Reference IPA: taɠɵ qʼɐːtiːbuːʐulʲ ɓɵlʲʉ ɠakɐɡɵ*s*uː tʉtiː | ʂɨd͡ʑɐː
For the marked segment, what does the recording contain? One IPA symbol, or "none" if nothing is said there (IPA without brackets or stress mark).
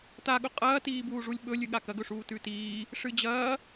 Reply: ʂ